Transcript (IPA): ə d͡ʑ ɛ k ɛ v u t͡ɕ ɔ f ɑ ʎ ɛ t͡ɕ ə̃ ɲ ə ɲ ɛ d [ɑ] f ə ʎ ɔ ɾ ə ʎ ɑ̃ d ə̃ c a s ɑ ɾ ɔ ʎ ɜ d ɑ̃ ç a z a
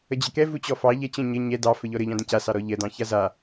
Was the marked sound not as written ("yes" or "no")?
no